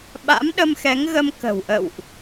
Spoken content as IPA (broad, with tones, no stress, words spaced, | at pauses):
ɓa̰˧˥mɗə˧mxɛ˨˦ŋ ɣə˧m kə̤˨˩wʔə̰˧˨wʔ